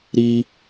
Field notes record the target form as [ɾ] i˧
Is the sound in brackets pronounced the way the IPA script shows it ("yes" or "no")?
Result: yes